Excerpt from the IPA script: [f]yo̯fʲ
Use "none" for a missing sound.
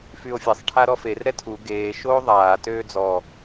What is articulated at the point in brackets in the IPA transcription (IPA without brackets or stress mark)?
f